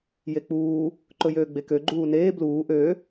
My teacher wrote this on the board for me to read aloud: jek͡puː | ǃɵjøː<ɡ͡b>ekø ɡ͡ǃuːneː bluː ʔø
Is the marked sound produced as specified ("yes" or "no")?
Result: yes